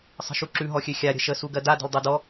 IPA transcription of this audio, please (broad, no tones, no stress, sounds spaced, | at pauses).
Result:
sˤ ə̤ ʃ u ǁ ʉ ɦ ɔ xʲ ø xʲ a ɾʲ ə̤ ʃ ə s u ɡ ɜ d a d ə̤ l dˤ e d ɔ